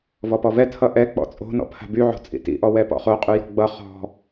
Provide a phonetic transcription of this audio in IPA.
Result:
v ɔ p ɔ v ɛ tʰ ʌ ʔ ɛ k͡p ɔ̰ t͡sʼ o̤ n ɔ̰ pʰ a̤ b y ʕ o̤ t͡sʼ ḭ t ḭ ʔ ɔ w ɛ p ɔ̰ χ o qʼ y j ɔ̤ ɡ͡b ʌ χ ɔ̤

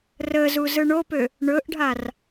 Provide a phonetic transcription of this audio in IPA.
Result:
r ə z u z ɯ ɳ o p ø | ɳ ɵ ʔ ɖʱ a r

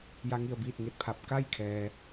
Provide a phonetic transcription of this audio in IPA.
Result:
j a˧ ŋ i˧˩ ə̯ b iː˥˨ t̚ ŋ e˧˩ t̚ pʰ a˧ p̚ k a˥˨ j kʰ ɛː˩

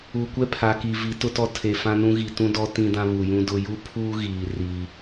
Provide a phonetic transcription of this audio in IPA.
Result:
u˨ kʷ ɛ˦ pʰ a˨ k i˨ v i˨˦ t ʊ˦ t ɔ˦ tʰ e˨ f ã˦ n ũ˦ ɣ i˨ t ũ˦ d ɔ˦ t ĩ˦ d ã˦ β u˨ j ũ˦ d ʊ˦ j u˦ pʰ uː˦ ɣ iː˨ r i˦

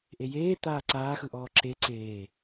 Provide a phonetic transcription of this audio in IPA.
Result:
ʔ e j eː t̪ aː ǀ aː x ɯ ʔ ɔː ǁ e ǀ eː

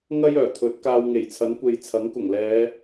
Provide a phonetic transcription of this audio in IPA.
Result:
ŋ ɐ˥ j œː˨˩ t̪ʰ ɵ˨˥ t̚ k aː˧ w ŋ e˨˩ j t͡sʰ ɐ˨˥ n kʷ e˨ j t͡sʰ ɐ˨˥ ŋ k ʊ˨˩ ŋ l ɛː˨˧

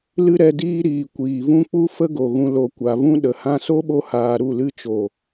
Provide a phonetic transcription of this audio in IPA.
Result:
l ɨ˦ ɾ ɛ˧ d iː˦ ɾ iː˨ kʷ iː˨ v ũ˦ k͡p u˦ f ə˦ ɡ o˨ ɣ ũ˧ l o˨ kʷ a˨ v ũ˧ ɗ ə˨ h ã˧ s o˦ ɓ o˧ h aː˨ ɾ u˦˨ l ɨ˧ t͡ʃ o˨

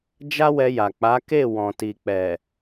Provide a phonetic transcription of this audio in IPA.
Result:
d͡ʒ a˦ w ɛ˧ j a˨ k͡p a˨˦ k e˦˨ w ɔ̃˨ t i˨ k͡p ɛ˨

